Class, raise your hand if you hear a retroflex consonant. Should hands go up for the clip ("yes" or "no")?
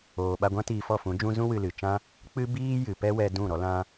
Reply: no